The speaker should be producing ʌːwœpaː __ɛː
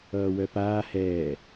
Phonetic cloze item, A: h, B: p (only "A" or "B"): A